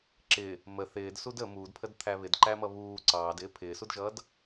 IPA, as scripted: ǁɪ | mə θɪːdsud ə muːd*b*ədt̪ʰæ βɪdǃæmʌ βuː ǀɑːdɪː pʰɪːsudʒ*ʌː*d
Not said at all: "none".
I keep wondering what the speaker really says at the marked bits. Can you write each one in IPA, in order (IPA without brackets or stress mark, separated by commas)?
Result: pʰ, ʌː